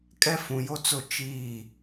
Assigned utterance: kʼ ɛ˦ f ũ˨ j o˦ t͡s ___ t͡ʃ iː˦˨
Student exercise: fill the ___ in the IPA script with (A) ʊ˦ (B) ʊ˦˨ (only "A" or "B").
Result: B